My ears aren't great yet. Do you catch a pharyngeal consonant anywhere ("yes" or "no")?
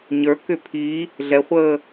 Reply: no